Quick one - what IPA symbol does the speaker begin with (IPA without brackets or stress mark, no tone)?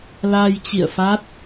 l